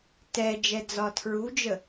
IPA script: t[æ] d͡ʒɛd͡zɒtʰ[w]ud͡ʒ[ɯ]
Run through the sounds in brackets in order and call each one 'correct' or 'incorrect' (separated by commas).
incorrect, incorrect, incorrect